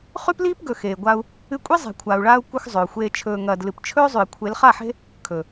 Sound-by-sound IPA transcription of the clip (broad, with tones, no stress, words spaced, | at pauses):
χʉ˦pliː˦pɡɵ˨ xeː˨ɡʷa˧u̯ | ɨ˧kʷʼi˦ zˤe̤˨kʷʰaː˨u̯ɭaː˧u̯ kʷɨ˧x zˤɵː˨xʷeː˦ t͡ʃʰɵː˧ŋɐː˧dlɨ˧p t͡ʃʰɵː˦zˤʉ˨i̯ kʷʰe˨˦lχa˦˨ħe̤˦ | kʰɵ˨